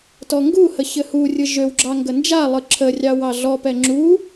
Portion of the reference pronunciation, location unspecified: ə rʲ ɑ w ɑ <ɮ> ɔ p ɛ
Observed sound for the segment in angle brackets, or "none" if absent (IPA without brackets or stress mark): ɮ